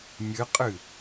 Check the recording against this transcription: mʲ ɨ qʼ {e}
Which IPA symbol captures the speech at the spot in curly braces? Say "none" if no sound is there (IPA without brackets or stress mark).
ɨ